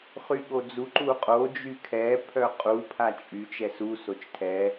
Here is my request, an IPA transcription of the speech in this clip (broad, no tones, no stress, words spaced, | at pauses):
χyɠod͡zu ǃuqʼo d͡ʒykʰɛ pʰœqʼu pʰat͡ʃʼy t͡ʃɛsu sot͡ʃtʰɛ